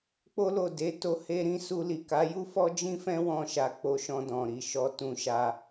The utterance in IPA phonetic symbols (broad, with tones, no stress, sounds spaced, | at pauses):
k͡p o˦ l o˦˨ d e˨˦ t o˧ h e˦ ɾ ĩ˧ s u˧ l i˨ k a˨˦ j u˦ f ɔ˦ d͡ʒ ĩ˦ f ɛ̃˦ w ɔ̃˦˨ ʃ a˧ k͡p o˧ ʃ ɔ̃˧ d ɔ̃˨ ɾ i˨ ʃ ɔ˨˦ t ũ˧ ʃ a˧